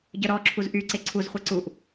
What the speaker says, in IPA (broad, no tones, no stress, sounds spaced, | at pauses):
ɟ œ ɾ ɔ ǁʰ u z ʔ y ǀ e ǀʰ u z χʷ ɐ ǀ u ʔ